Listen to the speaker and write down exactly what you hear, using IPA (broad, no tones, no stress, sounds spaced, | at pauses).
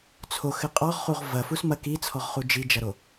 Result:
t͡sʰ o x ɘ qʼ ɔ ʁ χ u ʁ v ɐ f u s m ɐ k i t͡sʰ ɔ ʁ χ u d͡ʒ i d͡ʒ ɐ ɾ o